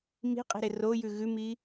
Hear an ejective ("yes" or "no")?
yes